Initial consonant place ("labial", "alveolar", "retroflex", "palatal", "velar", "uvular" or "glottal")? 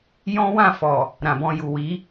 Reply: palatal